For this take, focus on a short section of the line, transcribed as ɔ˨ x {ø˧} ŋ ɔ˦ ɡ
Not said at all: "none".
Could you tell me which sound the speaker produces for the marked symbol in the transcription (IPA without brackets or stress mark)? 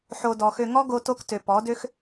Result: ø˧